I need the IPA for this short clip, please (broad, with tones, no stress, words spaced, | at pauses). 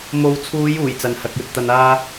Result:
mo˨wt͡sʰuː˨˧juː˨˩j t͡sɐ˨nhɐ˨k̚jɵ˨t̚ t̪ɐ˨naː˧